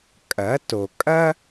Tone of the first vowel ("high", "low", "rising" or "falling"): rising